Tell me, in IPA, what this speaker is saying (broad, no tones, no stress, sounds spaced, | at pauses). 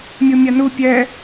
mʲ u mʲ a n u pʲ ɛ